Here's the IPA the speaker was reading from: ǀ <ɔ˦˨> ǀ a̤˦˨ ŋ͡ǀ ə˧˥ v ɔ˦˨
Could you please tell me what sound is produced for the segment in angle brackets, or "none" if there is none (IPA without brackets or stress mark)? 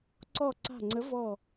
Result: ɔ˦˨